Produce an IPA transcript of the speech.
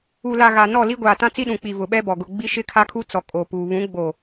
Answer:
u˨ l a˨ ɣ aː˨ n ɔ˦˨ l i˦ ɡʷ aː˨ t ã˦ t͡s i˦ ɗ ũ˨ k͡p i˨ v ʊ˨ ɓ ɛ˦ b ɔ˨ ɡ ʊ˨ ɡ͡b i˦ ʃ ɪ˦ kʰ a˦ kʰ u˦ t͡s ɔ˨ kʼ o˨ p uː˨ β ũ˨˦ ɡ͡b o˨

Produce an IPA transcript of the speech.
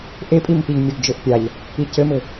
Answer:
ʔ e pʼ i m p i ʎ mʲ o ɡ d͡ʒ ɘ ʔ pʲ a ʎ | i c ɘ m ɘ

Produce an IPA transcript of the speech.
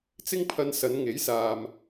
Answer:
t͡s ɪ˥ ŋ pʰ ɐ˧ n s ɐ˨˧ n ŋ e˨˥ j s aː˨ m

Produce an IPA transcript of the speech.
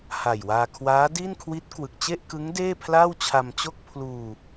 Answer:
h a˨˩ j w aː˧ kʰ w aː˦˥ d i˥˩ n kʰ w i˦˥ t̚ k w ɯ˨˩ k̚ t͡ɕ e˥˩ ʔ k ɯ˦˥ ŋ d eː˥˩ pʰ l a˥˩ w t͡ɕʰ a˧ m t͡ɕ o˥˩ k̚ pʰ l uː˧

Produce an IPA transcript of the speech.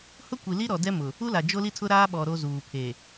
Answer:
h ʊ˦ kʷ i˨ l i˦ ɾ ɔ˨ d ɛ˦ m ʊ˨ | u˦ l a˨ d͡ʒ o˦ l i˦ tʰ ʊ˦ ɾ aː˦ ɓ ɔ˨ ɾ o˦ z uː˨ pʰ e˨

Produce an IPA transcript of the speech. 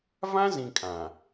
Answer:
v ã˦ z ĩ˨ kʼ ã˨

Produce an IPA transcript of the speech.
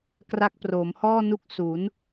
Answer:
k r a˦˥ k̚ p r oː˩˦ m h ɔː˥˩ n u˦˥ k̚ s u˩˦ n

